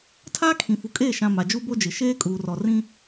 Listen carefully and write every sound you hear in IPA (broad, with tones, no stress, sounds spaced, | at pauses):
tʰ aː˦ kʰ ĩ˨ f u˨ kʼ eː˦˨ ʃ ã˨ m a˨ d͡ʒ u˦ b o˦ d͡ʒ ɪ˨ ʃ eː˦ kʼ uː˨ r ɔ˨ r ĩ˦